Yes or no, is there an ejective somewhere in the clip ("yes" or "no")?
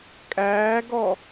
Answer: yes